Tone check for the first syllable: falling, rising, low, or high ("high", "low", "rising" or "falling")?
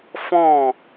falling